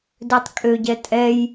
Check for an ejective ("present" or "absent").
present